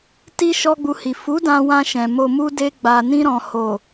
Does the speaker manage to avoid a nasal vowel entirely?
no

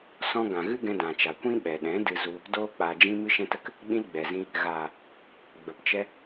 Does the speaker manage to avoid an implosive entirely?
no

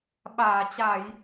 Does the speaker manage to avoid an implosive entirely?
no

